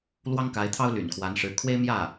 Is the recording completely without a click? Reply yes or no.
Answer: yes